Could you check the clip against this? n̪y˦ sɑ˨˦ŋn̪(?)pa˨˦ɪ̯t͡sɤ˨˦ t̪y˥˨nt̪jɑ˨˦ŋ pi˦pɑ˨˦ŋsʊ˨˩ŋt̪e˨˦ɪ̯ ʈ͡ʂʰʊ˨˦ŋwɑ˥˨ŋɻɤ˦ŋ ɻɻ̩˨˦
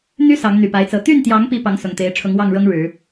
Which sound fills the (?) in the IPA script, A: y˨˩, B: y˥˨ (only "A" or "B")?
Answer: A